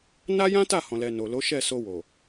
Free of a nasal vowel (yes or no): no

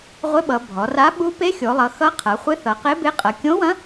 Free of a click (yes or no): yes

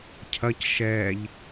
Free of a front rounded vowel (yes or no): yes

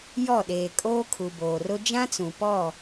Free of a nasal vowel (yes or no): no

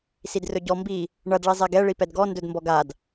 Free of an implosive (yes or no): yes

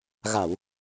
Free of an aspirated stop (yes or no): yes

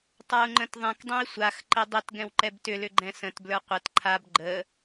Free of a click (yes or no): no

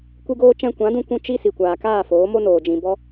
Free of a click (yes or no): yes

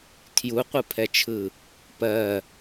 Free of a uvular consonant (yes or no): no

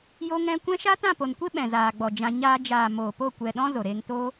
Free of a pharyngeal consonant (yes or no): yes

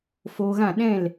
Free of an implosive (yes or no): no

